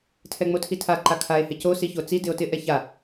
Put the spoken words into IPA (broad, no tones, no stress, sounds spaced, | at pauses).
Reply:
tʰ ɛ ŋ͡m o tʰ i tʰ a ǃ a kʰ a e̯ h ɪ c o s i ç o t͡s i d ɪ o̯ t ɪ ʔ ɛ ç a